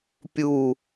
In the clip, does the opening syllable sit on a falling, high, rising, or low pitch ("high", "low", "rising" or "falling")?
falling